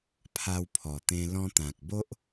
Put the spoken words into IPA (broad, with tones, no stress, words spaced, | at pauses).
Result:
pʰa˧wpʰɔ˨˩t̪ẽ˧ lɔ̃˧t̪ã˨k̚bo˦ʔ